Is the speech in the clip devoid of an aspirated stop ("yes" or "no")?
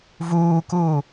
yes